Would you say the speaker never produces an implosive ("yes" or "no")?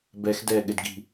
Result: no